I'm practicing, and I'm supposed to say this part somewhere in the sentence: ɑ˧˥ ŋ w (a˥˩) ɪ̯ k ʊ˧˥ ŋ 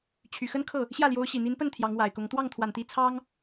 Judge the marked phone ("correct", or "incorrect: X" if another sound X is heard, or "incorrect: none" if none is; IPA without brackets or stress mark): incorrect: a˨˩